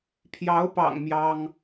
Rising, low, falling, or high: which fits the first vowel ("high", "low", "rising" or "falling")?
rising